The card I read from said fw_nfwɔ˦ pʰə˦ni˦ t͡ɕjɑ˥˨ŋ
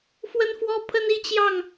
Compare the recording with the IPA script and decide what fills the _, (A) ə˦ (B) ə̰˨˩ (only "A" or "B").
A